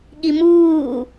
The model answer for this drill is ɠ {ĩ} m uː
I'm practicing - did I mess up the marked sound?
yes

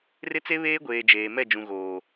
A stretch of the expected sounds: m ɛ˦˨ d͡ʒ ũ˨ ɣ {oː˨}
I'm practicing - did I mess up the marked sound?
no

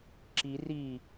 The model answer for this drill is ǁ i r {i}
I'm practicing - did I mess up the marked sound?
no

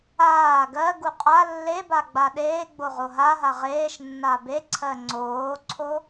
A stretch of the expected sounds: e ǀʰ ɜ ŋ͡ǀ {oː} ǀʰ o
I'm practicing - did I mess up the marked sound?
no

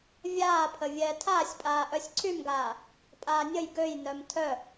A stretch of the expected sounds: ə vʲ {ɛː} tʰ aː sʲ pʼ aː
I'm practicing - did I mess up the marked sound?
no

